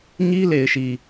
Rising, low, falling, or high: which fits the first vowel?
high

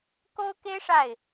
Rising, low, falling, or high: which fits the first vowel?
high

